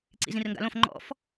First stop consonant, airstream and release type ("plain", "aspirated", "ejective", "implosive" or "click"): click